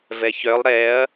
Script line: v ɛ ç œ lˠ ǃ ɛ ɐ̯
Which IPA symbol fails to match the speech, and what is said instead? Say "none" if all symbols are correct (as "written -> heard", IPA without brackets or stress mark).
ǃ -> ɾ